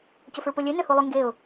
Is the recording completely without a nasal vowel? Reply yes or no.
yes